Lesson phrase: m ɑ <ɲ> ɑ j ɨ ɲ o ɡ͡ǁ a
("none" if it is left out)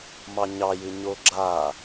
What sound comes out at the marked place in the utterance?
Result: ɲ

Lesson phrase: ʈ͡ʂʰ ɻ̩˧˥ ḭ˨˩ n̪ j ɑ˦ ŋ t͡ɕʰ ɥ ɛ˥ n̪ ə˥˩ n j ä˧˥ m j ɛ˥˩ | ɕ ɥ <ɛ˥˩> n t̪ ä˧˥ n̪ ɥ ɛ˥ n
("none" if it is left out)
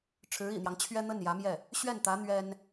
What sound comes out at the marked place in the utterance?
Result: ɛ˥˩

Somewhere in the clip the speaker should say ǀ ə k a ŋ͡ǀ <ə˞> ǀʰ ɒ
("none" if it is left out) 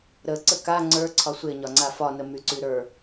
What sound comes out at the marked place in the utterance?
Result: ə˞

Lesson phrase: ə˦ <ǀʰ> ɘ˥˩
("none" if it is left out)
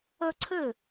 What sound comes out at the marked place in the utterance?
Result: ǀʰ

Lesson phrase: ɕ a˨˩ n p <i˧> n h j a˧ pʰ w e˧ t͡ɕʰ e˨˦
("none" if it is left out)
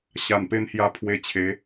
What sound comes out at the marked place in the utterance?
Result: e˧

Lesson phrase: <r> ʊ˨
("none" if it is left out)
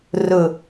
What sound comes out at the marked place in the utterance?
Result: r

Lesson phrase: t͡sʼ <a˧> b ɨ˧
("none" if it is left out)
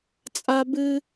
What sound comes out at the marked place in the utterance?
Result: a˧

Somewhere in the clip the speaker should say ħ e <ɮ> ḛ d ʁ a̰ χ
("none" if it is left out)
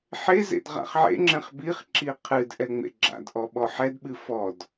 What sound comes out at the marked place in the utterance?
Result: z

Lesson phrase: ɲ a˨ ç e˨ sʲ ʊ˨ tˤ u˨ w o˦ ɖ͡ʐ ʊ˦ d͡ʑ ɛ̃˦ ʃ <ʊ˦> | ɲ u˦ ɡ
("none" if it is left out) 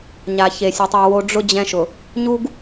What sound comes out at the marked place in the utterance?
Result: ʊ˨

